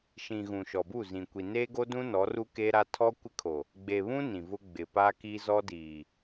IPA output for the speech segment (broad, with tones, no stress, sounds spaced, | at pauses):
ʃ ĩ˨ ɣ ũ˨ ʃ ɔ˨ b u˦˨ z ĩ˨ kʷ i˨ n eː˦ ɡ o˦ d ũ˦ n ɔ˨˦ r u˦ k eː˦ ɾ a˦ tʰ ɔ˦ kʷ ɪ˦ kʰ o˨ | ɡ͡b e˨ β ũ˦ n ĩ˨ v ʊ˦ ɡ͡b ɪ˨ p a˦ k i˦ z ɔ˦ d iː˨